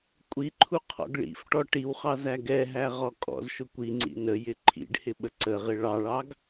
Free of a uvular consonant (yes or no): no